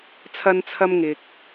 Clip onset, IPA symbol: t͡sʰ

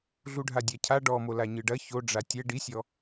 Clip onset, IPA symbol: ɮ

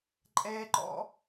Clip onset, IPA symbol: ǃʼ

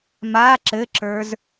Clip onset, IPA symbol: m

